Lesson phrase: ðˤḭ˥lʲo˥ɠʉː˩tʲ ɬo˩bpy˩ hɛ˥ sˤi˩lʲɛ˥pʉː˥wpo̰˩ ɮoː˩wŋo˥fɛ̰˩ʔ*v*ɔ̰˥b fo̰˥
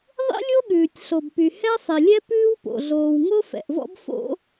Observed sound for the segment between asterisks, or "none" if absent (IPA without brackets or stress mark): v